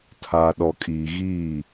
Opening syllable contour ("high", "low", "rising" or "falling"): low